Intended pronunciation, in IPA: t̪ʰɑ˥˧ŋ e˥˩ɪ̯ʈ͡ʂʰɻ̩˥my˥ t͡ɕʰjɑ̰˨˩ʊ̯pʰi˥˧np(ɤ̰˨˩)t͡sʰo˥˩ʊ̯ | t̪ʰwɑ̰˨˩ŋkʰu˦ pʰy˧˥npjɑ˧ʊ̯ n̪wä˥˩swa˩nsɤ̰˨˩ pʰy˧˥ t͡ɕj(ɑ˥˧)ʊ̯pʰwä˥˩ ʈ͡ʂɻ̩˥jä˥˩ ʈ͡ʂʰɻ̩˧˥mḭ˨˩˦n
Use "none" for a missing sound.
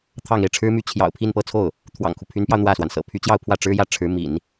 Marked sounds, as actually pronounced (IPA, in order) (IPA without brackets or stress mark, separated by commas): ɤ˥˧, ɑ˥˧